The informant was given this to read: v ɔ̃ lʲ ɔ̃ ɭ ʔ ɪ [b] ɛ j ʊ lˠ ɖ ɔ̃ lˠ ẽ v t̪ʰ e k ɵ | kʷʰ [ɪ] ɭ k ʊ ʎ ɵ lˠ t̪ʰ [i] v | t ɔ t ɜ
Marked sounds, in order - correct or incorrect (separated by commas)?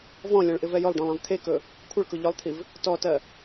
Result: incorrect, correct, correct